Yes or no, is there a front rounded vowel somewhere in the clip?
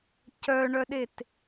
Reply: yes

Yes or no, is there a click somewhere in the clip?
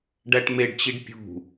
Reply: no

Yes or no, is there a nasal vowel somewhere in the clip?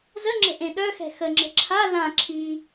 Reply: yes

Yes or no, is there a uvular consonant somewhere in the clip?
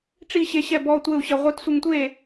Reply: yes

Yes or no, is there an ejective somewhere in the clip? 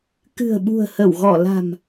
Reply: no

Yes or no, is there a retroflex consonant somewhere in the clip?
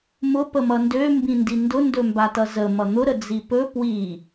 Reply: no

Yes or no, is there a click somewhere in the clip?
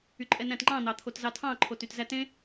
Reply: yes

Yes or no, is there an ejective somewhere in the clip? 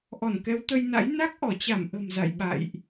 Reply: no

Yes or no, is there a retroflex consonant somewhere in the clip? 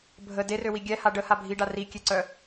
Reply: yes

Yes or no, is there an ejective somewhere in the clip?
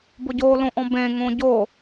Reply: no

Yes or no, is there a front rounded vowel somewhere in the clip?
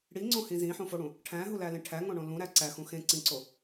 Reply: no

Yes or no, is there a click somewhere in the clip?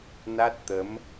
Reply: no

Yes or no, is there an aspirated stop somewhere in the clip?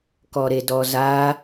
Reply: no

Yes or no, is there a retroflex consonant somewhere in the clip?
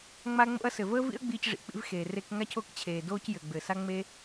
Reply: yes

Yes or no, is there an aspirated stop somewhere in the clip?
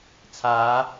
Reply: yes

